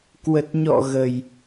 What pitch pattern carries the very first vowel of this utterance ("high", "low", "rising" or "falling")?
low